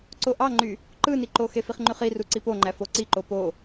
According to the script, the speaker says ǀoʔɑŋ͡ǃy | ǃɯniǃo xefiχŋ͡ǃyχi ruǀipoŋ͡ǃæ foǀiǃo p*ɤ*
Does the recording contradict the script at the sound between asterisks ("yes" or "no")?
yes